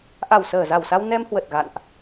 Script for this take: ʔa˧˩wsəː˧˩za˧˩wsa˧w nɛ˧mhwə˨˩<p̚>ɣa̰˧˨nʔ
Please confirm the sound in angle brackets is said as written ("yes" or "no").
no